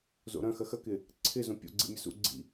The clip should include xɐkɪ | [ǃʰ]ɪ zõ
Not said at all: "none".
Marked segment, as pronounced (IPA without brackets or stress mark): ǀʰ